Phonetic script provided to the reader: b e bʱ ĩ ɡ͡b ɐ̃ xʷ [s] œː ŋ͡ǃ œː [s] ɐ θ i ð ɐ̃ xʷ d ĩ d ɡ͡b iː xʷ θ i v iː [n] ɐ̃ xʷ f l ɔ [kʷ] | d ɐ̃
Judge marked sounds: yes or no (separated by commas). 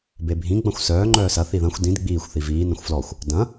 yes, yes, yes, no